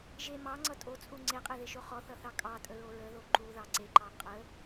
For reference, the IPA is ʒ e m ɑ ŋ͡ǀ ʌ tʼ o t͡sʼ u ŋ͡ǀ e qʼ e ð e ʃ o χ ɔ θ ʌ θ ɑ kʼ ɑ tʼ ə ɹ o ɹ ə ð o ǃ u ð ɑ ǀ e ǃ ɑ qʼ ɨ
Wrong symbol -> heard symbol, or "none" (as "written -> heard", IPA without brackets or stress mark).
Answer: ɨ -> ə